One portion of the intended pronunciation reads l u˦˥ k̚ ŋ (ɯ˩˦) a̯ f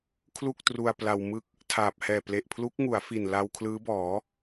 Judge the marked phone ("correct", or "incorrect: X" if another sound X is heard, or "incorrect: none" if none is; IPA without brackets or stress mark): incorrect: u˩˦